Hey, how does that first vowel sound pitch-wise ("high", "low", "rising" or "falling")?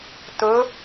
rising